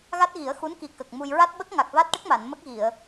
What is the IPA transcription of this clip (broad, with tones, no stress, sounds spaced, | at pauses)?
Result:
ɣ a˦˥ t̚ ɣ i˨˩˦ ə̯ x u˧˥ n k i˨˩ k ə˨˩ k̚ m u˧ j ɹ a˦˥ t̚ ɓ ə˦˥ k̚ ŋ a˨˩ k̚ v a˦˥ t̚ ʈ ə˦˥ k̚ m a˨˩˨ n m ə˦˥ k̚ ɣ i˨˩˨ ə̯